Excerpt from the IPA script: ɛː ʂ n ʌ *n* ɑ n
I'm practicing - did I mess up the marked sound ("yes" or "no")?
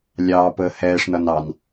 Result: no